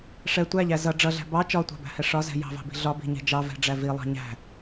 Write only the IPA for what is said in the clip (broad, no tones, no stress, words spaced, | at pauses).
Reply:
ʂɛ tʷæʎæ zʌ ɖ͡ʐʌɮæ̤ bɑ t͡ʃɒtʷɑ̤bæ̤hɛ ʂɒzɛ̤ jɑ̤vɑ̤bi̤ ɮɒbi̤ɲɛ̤ d͡ʒɑvɛ̤ɖ͡ʐæ vilˠɑ̤ ɲæ̤